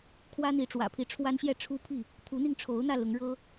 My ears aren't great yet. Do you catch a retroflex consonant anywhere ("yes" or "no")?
yes